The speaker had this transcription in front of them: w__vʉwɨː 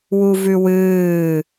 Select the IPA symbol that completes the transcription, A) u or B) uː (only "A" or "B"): A